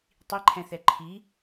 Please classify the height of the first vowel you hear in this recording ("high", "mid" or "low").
high